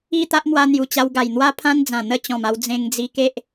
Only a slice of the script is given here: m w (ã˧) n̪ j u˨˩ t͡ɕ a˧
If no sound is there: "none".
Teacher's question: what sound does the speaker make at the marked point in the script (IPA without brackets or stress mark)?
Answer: a˧